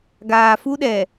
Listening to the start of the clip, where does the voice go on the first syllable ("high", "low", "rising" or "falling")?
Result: low